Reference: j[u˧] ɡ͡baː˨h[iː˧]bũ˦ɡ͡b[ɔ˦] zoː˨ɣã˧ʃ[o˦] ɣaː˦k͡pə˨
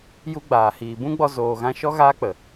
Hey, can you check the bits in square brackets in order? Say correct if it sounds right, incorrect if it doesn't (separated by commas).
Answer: correct, incorrect, incorrect, incorrect